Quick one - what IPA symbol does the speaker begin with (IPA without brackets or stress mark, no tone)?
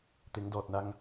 t̪